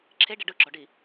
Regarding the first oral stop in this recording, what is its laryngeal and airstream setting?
click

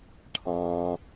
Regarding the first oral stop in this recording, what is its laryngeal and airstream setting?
aspirated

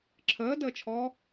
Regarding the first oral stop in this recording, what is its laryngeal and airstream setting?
click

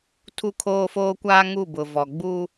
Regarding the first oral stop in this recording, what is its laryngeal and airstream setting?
aspirated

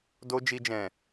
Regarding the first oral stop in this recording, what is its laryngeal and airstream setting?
plain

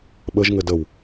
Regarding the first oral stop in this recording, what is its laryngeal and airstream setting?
implosive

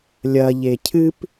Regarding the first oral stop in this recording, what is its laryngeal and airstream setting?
aspirated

